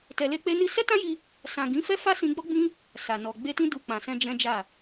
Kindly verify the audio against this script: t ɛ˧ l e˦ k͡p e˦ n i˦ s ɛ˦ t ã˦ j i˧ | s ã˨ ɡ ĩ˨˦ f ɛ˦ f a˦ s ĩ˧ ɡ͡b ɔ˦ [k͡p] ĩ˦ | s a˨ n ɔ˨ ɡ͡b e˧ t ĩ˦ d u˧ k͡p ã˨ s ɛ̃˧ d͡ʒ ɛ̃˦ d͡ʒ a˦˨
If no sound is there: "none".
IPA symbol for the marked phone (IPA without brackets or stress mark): ɡ͡b